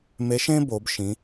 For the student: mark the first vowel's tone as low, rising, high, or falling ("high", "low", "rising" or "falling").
rising